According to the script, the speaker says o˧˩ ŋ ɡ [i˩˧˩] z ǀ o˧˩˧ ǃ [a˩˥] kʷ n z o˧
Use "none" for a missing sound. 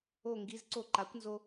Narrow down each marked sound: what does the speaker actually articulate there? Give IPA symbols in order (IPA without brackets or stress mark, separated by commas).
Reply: i˩˧˩, a˩˥